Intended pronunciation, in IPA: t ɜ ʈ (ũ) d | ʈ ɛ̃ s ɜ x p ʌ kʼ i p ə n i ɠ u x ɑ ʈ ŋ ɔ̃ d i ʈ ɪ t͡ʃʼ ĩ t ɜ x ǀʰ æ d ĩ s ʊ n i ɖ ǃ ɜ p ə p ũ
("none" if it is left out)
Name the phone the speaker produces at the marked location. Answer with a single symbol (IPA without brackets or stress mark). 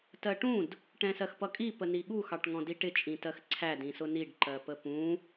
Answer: ũ